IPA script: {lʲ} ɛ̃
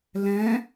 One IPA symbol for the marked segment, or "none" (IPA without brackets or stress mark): l